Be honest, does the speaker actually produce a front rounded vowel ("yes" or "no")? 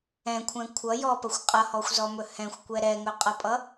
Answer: no